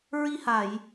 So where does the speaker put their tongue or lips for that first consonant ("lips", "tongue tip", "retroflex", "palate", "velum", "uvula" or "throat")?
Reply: tongue tip